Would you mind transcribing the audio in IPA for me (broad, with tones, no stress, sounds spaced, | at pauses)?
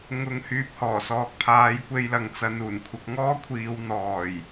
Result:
ŋ ʊ˨˧ ŋ h yː˨ p̚ h ɔː˨˩ s ɔː˨ k̚ pʰ aː˨˧ j kʷ e˧ j l ɐ˨ ŋ t͡s ɐ˨˧ n uː˨˩ n kʷʰ ɐ˧ k̚ ŋ ɔː˥ kʷʰ iː˨˧ w n̪ ɔː˨˩ j